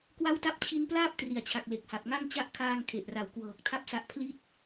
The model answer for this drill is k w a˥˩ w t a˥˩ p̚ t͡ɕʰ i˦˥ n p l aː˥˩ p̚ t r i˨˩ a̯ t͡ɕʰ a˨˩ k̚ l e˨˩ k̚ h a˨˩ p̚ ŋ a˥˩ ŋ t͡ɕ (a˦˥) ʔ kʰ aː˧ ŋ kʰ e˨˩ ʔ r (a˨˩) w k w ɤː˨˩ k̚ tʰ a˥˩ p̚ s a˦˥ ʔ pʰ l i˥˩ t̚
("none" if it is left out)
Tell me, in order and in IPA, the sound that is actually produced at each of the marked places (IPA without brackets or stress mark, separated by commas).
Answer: a˦˥, a˨˩